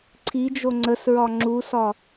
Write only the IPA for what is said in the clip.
ǀʰ i d͡ʒ o ŋ͡ǀ ə s ɹ ɒ ŋ͡ǁ u s ɒ

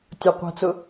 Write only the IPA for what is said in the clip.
tʲ ʊ qʷ ɛ̤ t͡s ʊ

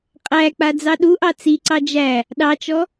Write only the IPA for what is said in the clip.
qʼ æ k͡p a d͡z ɑ ɗ u ʔ ɑ t͡s i ǀ ɑ d͡ʒ æ | ɗ ɑ t͡ʃ ɔ

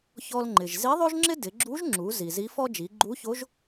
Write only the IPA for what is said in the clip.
ç ɔ˧ l ŋ͡ǃ ɪ˩ ʒ z i˧˥ ðˤ o˥ ʒ ŋ͡ǁ ɪ˥ d ɪ˩˧ ɡ͡ǁ u˧˥ ʒ ŋ͡ǁ u˩˧ z i˩ z i˧˥ f ɔ˥ d͡ʒ i˩˧ ɡ͡ǃ u˧˥ ç o˧˥ ʒ

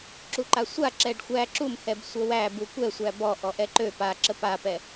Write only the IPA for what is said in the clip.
ǁ u ǃ a sʷ a ǁ ɛ ɖ xʷ æ ǁ u m h ɛ b sʷ ə w æ b u kʷ ɛ sʷ æ b ɔ ʔ ɔ ʔ ɛ ǃ ø p a ǁ ə p a p ɛ

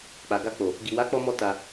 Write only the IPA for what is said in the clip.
k͡p a˨ ɡ a˧ k͡p o˨ | ɡ i˨ w a˨˦ k͡p ɔ˧ m ɔ˧ t a˧

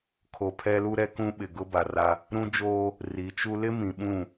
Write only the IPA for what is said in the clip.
kʰ o˨ pʰ ɛ˦ l u˦ ɾ ɛ˦ k ũ˦ ɓ ɪ˨ ɡ ʊ˦ b a˨ r a˦ | ɾ ũ˦ d͡ʒ oː˦ | r i˨˦ t͡ʃ u˦ l ɪ˦ m ĩ˨ ɓ ũ˦˨

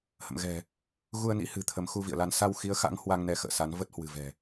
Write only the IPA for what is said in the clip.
h ə̰˧˨ m ɣ ɛ̤˨˩ | ɣ u˧ ə̯ n ḭ˧˥ h ɨ̤˨˩ t̪ʰ ə˨˦ m x u˧ v ḭ˧˨ ə̯ l a˧ n s a˧ w x i˨˦ ə̯ x a̰˧˥ ŋ h w a˧ ŋ n ɛ˨˦ x ə̰ː˧˨ s a˨˦ n v ə˦˥ t̚ h w ɨ̤˨˩ v ɛ̤˨˩

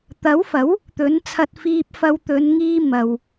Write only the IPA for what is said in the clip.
t̪ ɐ˨˥ w f ɐ˨˥ w | t̪ ɵ˨˥ n t͡sʰ ɐ˧ t̚ f iː˧ p̚ f ɐ˧ w t̪ ɵ˨˧ n ŋ iː˧ m ɐ˨ w

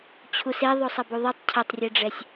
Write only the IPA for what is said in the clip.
t͡ɕʰ u s e ðˤ o sˤ ɐ b u ðˤ i tˤ cʰ ɐ tˤ rʲ e ɖ͡ʐ ɛ sʲ

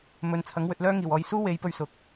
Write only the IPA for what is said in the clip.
m ɵ˨ n t͡sʰ ɐ˨˥ ŋ w ɵ˧ t̚ l œː˥ ŋ iː˨˩ w ɔː˨˧ j s uː˥ w e˨˧ j p ɵ˥ ɥ s ʊ˨ k̚

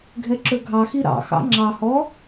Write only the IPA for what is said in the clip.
ɡʱ ɛ ǁ ɵ ɡʱ ɑ x i ɾ ɑ̰ x ɑ̰ ŋ͡ǁ ɑ h ɔ

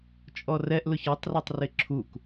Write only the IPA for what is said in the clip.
t͡ʃʼ ɔ r ɛ ʔ l ʊ ç ɔ tˤ r a tˤ r ɪ ǁʰ u k

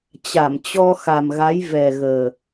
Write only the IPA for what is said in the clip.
t͡ɕ a˧˩ m t͡ɕ ɔ˧ x a˨˩ m ɣ a˨˦ j v ɛ˨˩ ɣ əː˨˩

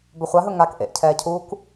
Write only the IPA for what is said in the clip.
b ɵ χʷ a ɦ ɵ ŋ a k ʔ ḛ ʔ cʰ ɛː cʰ uː k

